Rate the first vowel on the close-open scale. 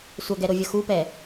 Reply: mid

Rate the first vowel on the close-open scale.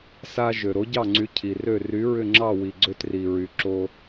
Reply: open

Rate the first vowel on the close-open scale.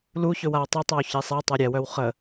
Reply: close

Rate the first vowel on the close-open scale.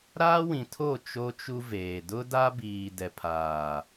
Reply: open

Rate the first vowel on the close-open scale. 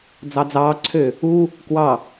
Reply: open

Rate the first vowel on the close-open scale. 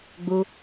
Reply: close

